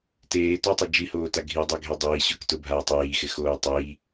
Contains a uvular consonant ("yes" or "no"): no